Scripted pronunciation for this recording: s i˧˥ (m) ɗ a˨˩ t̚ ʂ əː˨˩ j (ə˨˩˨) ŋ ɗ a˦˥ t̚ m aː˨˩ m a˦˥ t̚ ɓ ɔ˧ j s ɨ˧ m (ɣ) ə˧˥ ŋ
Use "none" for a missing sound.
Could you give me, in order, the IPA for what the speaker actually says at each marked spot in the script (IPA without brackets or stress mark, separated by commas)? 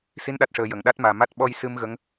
n, ə˨˩˨, ɣ